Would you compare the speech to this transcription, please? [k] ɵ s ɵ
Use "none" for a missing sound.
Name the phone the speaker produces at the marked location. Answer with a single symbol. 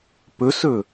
p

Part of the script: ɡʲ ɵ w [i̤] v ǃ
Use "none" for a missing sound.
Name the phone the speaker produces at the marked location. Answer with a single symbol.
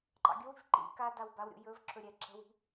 i̤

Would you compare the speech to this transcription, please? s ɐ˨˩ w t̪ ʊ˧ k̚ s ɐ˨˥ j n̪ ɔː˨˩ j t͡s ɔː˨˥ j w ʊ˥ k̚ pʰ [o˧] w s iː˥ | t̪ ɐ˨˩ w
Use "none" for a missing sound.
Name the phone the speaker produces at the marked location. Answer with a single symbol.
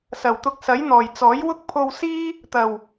o˧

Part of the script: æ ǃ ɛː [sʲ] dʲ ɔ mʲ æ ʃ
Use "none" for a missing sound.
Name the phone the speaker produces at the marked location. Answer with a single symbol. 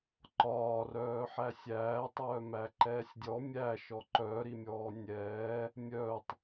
sʲ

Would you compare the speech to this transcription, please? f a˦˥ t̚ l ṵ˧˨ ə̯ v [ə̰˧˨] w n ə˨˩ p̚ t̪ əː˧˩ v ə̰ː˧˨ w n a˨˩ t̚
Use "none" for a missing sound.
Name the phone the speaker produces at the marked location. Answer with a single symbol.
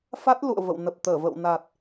ə̰˧˨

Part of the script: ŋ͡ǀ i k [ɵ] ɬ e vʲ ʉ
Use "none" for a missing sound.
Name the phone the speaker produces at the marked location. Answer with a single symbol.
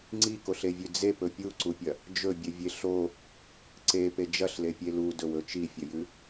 o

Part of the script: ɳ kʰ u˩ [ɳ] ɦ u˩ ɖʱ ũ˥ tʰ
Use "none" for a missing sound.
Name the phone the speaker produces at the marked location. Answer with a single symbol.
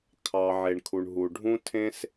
ɳ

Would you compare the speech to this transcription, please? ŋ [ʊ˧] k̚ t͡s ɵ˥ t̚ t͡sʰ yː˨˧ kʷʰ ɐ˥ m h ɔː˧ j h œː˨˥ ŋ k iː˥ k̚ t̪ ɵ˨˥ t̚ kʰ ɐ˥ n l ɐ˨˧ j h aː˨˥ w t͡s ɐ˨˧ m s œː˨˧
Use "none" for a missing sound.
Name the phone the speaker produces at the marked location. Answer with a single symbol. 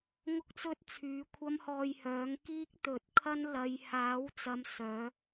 ʊ˥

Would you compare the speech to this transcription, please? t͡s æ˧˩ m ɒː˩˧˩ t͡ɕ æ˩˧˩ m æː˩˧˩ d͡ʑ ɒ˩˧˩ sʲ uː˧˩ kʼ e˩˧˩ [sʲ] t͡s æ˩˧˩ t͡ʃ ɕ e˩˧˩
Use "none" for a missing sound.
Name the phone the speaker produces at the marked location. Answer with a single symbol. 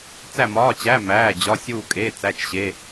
none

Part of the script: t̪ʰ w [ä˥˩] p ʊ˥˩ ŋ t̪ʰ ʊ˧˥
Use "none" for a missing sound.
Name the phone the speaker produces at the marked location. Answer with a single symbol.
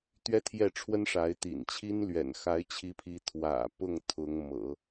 ä̰˨˩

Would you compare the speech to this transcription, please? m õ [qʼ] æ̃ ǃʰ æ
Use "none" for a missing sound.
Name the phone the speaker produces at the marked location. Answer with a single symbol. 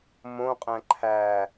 qʼ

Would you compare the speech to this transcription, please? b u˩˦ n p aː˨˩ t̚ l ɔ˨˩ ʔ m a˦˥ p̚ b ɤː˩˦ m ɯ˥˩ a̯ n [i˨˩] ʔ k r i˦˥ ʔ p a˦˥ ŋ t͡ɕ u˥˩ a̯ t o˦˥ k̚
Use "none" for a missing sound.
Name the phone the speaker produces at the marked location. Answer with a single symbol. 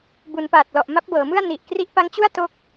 i˨˩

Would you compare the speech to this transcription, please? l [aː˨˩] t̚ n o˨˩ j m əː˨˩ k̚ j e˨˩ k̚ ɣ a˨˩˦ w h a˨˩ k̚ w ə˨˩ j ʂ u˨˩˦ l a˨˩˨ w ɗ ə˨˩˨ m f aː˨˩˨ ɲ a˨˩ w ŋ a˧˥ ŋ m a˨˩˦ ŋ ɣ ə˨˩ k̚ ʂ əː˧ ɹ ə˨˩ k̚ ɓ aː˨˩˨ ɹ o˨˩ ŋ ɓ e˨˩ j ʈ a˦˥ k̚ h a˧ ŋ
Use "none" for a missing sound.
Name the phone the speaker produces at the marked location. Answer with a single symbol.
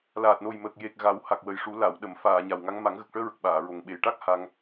aː˨˩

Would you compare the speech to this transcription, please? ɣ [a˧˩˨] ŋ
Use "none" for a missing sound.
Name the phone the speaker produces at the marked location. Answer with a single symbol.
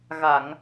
a˧˩˨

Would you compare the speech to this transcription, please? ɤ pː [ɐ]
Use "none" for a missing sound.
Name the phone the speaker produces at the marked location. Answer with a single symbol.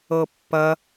ɐ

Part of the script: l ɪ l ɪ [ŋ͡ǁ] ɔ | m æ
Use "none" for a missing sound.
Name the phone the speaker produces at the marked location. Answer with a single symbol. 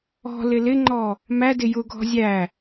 ŋ͡ǃ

